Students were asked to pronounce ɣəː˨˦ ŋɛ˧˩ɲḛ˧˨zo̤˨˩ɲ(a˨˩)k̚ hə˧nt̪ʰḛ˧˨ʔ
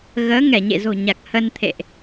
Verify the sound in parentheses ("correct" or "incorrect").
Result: correct